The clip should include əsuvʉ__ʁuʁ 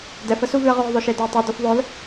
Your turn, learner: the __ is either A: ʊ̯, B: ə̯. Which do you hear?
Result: B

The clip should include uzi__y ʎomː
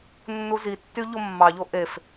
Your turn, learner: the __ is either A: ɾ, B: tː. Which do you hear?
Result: B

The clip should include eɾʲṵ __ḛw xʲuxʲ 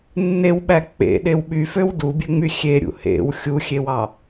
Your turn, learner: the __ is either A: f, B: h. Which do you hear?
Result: B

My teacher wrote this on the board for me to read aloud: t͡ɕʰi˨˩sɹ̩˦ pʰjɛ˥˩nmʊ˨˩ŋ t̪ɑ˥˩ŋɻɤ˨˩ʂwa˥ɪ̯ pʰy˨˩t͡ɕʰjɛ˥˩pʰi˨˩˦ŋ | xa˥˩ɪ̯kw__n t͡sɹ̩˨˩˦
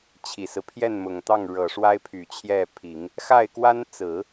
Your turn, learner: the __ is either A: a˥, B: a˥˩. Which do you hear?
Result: A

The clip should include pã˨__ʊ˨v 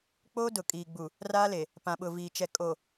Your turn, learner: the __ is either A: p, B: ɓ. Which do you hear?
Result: B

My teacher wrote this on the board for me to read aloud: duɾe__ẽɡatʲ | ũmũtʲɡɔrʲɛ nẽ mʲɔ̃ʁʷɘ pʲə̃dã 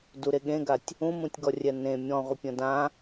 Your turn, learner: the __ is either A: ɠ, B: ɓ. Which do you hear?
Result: A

